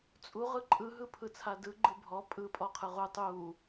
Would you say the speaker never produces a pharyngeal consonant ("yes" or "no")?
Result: yes